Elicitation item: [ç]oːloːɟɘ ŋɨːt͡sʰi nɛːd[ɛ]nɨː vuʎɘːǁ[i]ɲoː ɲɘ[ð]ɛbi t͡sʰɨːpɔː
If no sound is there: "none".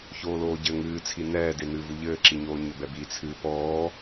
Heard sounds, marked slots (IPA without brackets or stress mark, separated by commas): ç, e, i, b